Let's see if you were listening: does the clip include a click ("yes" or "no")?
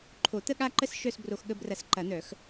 yes